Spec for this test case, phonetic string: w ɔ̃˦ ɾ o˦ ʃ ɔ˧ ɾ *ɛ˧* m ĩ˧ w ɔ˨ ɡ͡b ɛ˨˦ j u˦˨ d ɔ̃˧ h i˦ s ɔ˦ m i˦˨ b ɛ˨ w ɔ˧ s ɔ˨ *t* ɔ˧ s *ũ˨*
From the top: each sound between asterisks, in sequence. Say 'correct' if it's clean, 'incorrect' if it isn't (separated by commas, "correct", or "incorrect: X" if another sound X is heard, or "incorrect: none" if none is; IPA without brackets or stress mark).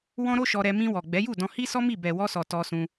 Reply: correct, correct, incorrect: ũ˧